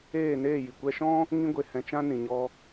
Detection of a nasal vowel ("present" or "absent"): present